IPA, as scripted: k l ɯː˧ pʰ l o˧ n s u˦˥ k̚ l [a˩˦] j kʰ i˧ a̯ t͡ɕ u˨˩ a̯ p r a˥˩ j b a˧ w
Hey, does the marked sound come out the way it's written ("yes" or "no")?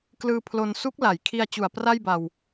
yes